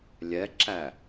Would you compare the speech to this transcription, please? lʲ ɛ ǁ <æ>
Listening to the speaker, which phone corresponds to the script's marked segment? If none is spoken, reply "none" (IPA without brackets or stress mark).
æ